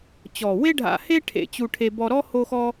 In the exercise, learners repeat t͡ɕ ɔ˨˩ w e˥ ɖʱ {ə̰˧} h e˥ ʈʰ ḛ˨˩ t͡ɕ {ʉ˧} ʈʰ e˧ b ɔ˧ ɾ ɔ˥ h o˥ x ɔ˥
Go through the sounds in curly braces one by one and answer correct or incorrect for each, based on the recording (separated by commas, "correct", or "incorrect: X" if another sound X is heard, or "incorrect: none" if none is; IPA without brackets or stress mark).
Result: incorrect: a̰˧, incorrect: u˧